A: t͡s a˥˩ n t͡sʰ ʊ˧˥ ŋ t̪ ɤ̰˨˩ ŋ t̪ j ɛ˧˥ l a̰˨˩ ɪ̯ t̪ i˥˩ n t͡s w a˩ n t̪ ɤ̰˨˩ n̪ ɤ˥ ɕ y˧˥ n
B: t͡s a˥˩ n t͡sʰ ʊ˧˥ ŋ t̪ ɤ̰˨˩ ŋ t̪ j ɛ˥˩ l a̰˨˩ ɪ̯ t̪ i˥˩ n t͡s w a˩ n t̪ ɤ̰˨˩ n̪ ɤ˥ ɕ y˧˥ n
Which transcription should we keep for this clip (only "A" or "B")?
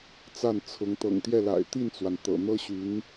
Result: B